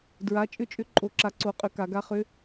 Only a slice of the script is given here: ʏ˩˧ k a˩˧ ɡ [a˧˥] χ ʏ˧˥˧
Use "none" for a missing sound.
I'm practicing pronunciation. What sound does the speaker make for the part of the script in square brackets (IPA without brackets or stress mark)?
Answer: a˧˥